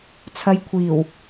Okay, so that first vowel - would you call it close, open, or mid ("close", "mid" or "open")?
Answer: open